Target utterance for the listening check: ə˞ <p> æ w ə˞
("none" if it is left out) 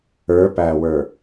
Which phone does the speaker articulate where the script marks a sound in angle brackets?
p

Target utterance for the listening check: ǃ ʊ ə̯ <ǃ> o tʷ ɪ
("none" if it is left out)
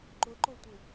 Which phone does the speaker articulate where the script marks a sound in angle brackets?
ǃ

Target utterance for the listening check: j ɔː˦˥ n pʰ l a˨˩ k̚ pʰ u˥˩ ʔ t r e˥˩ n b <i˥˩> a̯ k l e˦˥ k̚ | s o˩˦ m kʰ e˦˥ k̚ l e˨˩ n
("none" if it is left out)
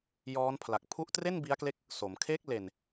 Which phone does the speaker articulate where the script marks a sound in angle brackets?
i˦˥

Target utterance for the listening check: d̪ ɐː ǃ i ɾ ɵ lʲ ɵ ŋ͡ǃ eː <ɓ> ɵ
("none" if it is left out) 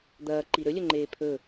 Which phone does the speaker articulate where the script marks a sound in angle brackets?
pʰ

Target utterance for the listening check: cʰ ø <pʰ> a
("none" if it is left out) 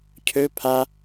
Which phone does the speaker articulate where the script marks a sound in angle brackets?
pʰ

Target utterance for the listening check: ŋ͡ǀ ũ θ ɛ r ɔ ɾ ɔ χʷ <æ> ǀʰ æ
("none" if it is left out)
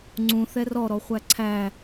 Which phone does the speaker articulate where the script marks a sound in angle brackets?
æ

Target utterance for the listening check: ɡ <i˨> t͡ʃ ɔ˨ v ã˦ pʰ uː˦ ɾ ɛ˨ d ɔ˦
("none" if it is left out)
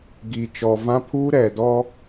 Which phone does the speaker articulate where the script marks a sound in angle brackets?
i˨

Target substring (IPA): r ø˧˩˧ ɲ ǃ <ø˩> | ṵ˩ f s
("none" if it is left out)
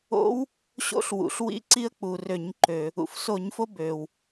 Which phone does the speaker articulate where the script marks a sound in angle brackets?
ø˩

